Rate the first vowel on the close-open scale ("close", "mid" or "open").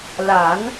open